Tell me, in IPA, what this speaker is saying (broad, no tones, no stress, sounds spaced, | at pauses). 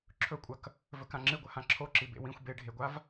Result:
ǁʰ ɵ kʷʼ ɐ k | v ɵ k ã ŋ͡ǁ ɨ ɡʷ ɐ h ã ǁʰ o ǁ i b ḛ w ĩ xʷ b e ɖʱ e ɡʷ a v